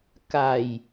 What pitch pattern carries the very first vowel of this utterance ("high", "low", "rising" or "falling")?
low